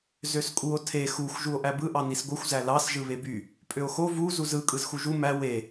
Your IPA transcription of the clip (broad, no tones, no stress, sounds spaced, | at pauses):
z ø s kʼ u o̯ tʰ e x u xʷ ʒ u o̯ ʔ æ b ɯ ʔ ɑ n i s ɡʷ ɯ xʷ z æ l ɑ s ʒ ɯ β e b y | pʼ ø o̯ x o v u z u z ɯ kʼ ɯ z x u ʒ u m æ w e